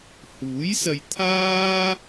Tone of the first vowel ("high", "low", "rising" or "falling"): rising